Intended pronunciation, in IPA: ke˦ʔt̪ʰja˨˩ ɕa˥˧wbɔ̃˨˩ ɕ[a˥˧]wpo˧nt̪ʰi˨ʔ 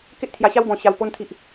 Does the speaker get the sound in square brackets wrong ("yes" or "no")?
yes